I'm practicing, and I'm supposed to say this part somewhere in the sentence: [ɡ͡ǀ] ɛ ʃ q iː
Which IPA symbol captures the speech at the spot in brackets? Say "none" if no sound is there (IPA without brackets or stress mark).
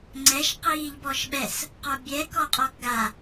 ŋ͡ǀ